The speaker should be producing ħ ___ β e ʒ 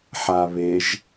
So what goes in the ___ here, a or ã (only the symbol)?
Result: a